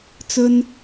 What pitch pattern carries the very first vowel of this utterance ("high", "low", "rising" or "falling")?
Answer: high